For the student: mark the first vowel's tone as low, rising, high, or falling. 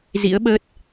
rising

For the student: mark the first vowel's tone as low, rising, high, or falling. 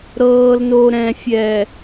low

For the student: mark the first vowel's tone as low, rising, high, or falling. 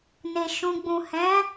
low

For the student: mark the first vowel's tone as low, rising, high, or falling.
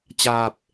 low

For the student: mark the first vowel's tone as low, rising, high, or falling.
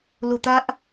low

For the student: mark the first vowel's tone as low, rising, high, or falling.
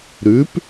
rising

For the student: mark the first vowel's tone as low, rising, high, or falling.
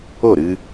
falling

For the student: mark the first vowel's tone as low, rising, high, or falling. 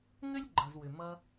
high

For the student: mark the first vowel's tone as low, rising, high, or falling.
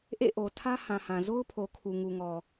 falling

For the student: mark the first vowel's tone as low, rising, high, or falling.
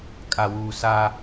low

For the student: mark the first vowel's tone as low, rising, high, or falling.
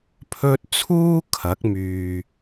high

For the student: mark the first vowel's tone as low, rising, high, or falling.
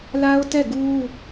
high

